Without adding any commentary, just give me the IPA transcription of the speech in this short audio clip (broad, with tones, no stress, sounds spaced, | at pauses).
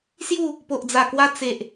s j u˥˧ | p o˨ ʔ d͡z a˨˩ k w a˧ t͡s e˨ ʔ